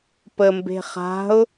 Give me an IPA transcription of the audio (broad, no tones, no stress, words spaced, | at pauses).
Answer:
pəmbe̤ χa̤ʊ̯